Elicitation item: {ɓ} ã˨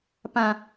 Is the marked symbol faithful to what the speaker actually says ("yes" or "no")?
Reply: no